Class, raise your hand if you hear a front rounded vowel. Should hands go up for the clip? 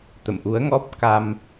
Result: no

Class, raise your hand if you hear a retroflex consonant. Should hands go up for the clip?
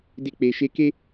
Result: no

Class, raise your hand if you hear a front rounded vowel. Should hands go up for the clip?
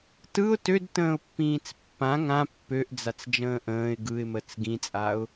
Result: yes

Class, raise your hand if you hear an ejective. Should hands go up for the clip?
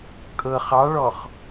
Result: yes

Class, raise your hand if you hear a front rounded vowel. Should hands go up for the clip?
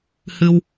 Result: no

